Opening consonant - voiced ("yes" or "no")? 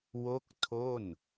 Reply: yes